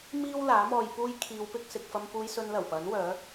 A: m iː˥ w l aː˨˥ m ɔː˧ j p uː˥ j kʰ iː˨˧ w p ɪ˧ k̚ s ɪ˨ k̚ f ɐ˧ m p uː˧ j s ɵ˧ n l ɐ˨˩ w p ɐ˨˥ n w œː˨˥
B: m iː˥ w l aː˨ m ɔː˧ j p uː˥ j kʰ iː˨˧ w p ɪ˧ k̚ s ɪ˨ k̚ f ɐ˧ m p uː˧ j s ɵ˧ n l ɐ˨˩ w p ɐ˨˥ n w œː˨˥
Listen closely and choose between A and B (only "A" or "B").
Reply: A